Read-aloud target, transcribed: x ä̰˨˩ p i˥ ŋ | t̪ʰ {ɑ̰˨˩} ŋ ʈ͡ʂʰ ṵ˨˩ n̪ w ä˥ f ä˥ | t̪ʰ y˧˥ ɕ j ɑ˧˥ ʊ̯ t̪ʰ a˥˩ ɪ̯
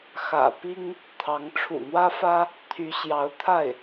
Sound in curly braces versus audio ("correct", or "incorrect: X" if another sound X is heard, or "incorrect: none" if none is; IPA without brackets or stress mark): incorrect: ɑ˧˥